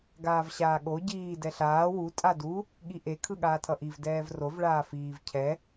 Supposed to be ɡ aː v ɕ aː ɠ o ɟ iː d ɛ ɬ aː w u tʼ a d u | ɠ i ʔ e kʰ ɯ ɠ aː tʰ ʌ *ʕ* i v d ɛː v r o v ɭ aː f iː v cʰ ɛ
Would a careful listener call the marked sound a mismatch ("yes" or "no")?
yes